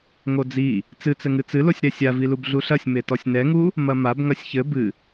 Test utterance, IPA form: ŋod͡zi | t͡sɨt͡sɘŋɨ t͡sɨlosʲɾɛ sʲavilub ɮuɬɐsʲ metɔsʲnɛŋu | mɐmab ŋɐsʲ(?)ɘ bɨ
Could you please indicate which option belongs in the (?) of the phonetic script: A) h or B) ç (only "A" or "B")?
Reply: B